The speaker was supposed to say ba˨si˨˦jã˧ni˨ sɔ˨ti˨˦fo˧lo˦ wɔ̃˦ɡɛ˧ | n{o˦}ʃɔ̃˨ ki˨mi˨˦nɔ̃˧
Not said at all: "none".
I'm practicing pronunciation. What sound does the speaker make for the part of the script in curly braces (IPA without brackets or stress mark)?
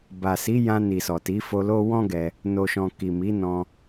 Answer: o˨